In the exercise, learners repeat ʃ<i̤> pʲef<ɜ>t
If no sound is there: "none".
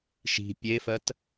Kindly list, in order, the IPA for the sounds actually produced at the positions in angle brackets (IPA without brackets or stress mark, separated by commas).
i̤, ɜ